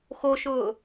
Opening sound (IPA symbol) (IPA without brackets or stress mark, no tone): x